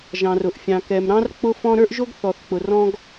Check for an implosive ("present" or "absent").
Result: absent